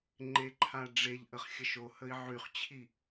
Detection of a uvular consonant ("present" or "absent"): present